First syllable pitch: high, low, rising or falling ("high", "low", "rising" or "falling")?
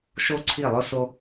high